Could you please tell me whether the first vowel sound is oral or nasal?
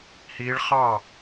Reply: oral